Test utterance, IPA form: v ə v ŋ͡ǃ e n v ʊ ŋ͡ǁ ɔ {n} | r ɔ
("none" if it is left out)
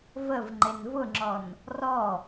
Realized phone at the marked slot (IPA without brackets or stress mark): n